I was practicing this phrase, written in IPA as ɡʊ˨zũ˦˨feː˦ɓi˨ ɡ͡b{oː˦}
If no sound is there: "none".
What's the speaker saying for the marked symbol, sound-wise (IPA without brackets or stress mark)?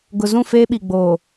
oː˨